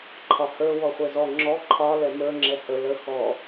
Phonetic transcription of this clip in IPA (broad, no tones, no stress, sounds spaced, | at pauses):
ǃʰ ɒ h ə˞ w ɔ χʷ ɛ z ɔ ŋ͡ǁ ɔ ǃʰ ɒ l ɛ m ə˞ ŋ͡ǁ ɛ h ə l ə x ɔ